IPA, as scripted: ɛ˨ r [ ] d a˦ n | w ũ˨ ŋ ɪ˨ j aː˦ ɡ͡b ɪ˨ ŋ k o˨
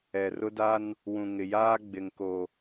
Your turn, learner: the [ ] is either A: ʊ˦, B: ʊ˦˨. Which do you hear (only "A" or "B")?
A